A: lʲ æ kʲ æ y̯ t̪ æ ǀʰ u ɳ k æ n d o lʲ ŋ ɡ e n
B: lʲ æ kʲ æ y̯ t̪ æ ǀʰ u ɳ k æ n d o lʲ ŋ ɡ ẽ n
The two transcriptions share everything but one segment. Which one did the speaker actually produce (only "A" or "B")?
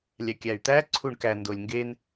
A